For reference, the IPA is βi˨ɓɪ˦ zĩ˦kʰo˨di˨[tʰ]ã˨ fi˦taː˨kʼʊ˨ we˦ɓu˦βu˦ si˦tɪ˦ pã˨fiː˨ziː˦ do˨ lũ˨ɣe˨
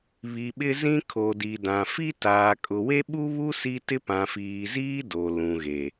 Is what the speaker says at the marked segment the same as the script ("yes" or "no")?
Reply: no